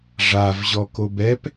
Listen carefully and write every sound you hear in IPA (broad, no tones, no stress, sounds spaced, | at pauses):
ʐ a v ʑ ɔ k o b ɛ p